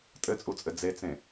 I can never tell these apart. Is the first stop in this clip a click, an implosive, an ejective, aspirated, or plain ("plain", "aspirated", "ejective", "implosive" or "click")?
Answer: ejective